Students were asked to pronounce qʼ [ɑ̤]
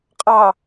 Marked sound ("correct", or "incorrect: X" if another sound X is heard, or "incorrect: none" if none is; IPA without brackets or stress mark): incorrect: ɑ